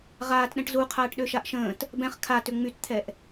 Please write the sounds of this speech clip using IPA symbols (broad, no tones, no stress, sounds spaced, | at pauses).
ʁ aː t ɗ ɛ̃ ʈ z u qʰ aː ʈ ɗ ø ʃ a ʔ ʃ ə̃ː t | b ɛ̃ χ kʰ a t ʏ ŋ͡m y t t̪ʰ ɛ ʔ